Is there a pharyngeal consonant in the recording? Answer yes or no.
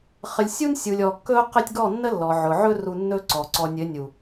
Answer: yes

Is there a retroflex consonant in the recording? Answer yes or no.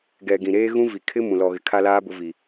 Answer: no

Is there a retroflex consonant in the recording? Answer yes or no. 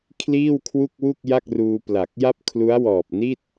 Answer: no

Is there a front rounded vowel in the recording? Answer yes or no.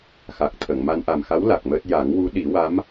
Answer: no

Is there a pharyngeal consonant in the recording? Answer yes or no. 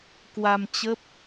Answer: no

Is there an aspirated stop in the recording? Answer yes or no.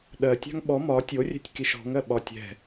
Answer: no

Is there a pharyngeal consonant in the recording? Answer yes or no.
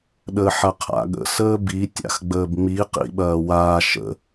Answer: yes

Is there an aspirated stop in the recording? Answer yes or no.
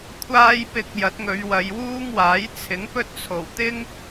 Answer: yes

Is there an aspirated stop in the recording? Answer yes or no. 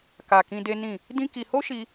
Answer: no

